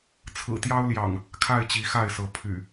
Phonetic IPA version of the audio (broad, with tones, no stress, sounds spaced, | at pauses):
t͡sʰ ɹ̩˨˩ t̪ j ɑ˦ ʊ̯ l j ɑ̰˨˩ ŋ | kʰ a˥˨ ɪ̯ t͡ɕ i˨˦ x a˥˨ ɪ̯ s ɤ˨˦ pʰ y̰˨˩